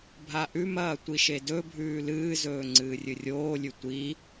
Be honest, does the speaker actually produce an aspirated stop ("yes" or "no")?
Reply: no